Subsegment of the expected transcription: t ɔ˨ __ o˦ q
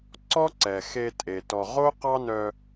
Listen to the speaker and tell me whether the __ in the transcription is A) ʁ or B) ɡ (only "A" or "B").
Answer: A